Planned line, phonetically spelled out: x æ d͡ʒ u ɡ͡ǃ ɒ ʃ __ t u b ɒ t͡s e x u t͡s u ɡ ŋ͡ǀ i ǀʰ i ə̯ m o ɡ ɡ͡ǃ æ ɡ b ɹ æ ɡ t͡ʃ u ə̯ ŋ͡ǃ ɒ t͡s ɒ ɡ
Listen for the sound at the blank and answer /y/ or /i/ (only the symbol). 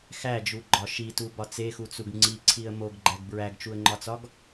i